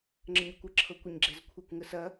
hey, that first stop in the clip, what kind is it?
click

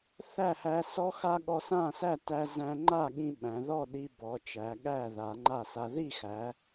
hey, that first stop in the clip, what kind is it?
implosive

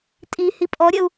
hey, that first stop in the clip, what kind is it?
ejective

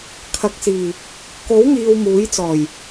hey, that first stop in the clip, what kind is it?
aspirated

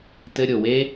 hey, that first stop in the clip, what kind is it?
plain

